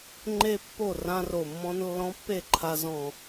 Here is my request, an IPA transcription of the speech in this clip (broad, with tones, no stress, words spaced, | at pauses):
ŋ͡ǃe˥˧pːo˥˩ rã˧ro˨˩ mːɔ̃˧n lːɔ̃˧˥pːe˥˩ǃʰa˧ zɔ̃˨˩